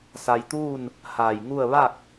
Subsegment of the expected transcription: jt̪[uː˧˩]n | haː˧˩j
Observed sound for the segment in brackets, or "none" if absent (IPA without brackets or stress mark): uː˥˨